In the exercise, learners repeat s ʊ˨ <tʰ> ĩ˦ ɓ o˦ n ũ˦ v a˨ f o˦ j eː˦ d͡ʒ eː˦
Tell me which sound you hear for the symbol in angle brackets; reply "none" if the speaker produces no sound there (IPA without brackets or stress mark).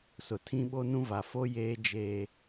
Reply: tʰ